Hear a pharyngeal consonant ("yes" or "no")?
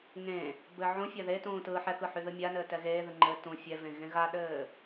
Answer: yes